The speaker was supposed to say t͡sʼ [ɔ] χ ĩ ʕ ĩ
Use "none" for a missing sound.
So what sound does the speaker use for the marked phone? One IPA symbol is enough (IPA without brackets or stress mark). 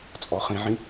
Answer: ɔ